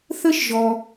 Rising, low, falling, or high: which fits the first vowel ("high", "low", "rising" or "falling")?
high